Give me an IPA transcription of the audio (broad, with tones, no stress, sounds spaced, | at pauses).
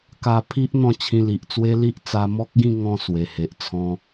k a˧ pʰ i˦ ʔ n̪ ɔ̃˥˧ t͡ɕʰ ĩ˧ l i˨ ʔ t͡s w e˦ l i˦ ʔ t͡s a˧ m ɔ˦ k̚ ɡ ĩ˥˧ ŋ ɔ̃˥˧ s w e˨˩ h e˨ ʔ t͡sʰ ɔ̃˧